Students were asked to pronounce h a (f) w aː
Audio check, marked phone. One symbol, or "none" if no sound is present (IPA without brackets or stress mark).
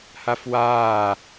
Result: f